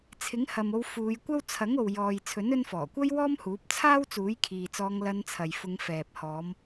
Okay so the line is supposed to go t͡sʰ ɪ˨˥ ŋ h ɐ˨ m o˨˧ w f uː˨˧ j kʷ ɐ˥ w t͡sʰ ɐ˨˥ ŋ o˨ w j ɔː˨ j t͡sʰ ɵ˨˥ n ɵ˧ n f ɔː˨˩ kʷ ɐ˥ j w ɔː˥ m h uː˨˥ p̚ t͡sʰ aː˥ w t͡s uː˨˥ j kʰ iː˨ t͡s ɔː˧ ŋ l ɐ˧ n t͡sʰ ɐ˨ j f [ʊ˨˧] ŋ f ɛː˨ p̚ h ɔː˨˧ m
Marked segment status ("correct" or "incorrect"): correct